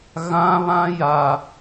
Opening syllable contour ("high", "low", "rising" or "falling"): high